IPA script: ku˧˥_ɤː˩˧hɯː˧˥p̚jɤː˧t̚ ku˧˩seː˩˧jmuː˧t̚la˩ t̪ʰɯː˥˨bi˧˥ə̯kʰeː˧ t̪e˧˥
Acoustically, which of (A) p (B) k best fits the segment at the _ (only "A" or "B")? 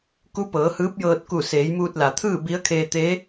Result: A